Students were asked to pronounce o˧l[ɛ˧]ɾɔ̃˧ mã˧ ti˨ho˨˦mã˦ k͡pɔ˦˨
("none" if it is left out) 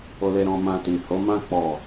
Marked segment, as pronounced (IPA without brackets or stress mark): e˧